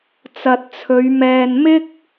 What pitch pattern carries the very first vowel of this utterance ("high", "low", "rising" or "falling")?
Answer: low